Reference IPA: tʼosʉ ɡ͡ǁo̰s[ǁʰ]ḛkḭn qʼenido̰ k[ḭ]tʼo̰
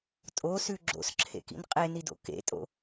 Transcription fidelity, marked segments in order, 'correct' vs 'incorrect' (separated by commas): correct, incorrect